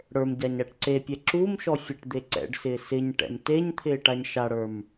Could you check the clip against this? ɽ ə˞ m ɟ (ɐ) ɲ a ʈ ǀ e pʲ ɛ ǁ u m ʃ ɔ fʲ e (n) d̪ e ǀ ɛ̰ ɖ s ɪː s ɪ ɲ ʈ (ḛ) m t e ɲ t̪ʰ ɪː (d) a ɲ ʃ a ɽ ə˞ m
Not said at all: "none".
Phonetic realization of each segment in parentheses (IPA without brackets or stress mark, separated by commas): a, ʈ, ɛ̰, ʈ